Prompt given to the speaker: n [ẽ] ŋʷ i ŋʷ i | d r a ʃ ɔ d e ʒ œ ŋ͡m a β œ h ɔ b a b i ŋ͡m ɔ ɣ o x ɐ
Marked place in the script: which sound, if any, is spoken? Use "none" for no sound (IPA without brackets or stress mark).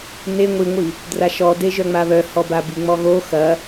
e